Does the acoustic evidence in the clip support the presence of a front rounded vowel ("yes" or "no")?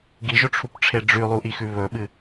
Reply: no